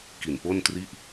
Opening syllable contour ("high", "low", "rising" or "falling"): low